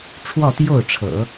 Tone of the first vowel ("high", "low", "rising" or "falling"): falling